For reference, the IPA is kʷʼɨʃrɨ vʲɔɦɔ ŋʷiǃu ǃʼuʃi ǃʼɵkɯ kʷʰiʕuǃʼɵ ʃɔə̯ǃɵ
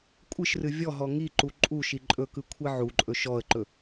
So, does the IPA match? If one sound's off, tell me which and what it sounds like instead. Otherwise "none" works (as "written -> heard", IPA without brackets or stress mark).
ŋʷ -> ŋ